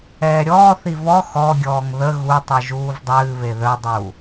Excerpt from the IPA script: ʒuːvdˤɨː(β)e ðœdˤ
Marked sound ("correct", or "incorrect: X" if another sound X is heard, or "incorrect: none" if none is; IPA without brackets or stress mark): correct